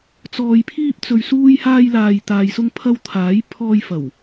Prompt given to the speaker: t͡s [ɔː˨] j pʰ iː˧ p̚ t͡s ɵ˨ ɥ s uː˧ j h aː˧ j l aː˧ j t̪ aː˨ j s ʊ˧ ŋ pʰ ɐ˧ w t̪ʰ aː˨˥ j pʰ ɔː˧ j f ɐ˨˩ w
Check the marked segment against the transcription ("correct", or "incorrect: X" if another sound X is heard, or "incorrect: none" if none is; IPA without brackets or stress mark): correct